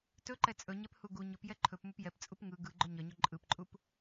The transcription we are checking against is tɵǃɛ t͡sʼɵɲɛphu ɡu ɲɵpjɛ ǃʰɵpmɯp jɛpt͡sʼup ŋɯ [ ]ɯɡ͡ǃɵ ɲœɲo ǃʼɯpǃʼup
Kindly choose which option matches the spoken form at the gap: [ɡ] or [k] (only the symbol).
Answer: ɡ